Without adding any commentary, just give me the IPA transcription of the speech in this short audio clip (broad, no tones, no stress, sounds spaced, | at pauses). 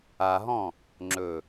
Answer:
a ɦ ɔ̃ | ŋ͡ǁ ɵ